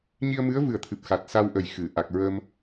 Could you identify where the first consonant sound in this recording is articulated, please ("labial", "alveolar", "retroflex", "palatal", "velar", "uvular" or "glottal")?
palatal